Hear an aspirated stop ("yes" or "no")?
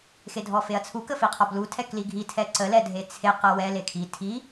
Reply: yes